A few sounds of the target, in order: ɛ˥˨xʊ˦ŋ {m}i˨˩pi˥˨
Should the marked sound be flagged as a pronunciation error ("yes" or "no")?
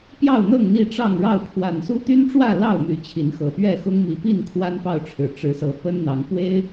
no